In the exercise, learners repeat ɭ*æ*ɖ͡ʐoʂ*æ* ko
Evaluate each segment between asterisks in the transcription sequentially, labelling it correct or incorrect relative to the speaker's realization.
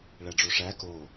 correct, correct

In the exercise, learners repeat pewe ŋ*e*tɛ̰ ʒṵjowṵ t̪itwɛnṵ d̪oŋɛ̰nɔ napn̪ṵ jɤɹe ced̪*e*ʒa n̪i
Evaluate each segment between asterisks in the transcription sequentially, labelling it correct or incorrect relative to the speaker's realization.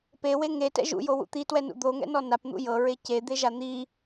correct, correct

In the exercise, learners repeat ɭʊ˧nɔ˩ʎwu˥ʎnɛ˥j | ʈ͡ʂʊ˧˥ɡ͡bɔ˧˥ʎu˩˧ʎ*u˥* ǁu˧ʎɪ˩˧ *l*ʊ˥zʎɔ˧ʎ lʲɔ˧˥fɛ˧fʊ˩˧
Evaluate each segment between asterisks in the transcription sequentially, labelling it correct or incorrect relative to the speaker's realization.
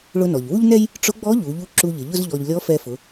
incorrect, incorrect

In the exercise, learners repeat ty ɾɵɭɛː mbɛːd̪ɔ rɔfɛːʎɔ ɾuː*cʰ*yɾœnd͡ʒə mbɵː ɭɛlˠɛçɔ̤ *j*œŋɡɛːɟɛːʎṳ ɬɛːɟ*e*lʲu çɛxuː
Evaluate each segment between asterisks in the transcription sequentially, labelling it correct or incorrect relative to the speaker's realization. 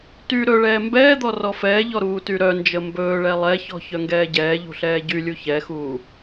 incorrect, incorrect, incorrect

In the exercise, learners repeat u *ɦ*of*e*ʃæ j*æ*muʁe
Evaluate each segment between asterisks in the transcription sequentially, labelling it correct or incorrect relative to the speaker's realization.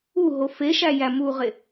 correct, correct, correct

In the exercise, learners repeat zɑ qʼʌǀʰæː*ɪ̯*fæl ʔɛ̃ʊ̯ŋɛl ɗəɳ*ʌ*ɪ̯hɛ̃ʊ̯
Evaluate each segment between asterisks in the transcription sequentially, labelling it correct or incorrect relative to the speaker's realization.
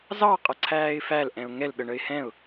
correct, incorrect

